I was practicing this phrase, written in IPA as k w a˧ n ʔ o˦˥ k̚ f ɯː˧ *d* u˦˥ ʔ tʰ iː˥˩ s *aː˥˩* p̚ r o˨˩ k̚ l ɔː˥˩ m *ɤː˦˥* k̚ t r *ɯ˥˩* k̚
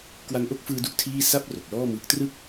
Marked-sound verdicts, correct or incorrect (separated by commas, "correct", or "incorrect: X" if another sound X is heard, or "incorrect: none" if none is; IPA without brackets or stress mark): correct, incorrect: a˥˩, incorrect: ɯː˦˥, correct